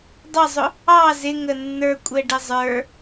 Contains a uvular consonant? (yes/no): no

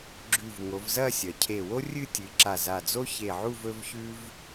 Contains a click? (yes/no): yes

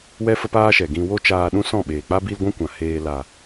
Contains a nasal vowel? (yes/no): yes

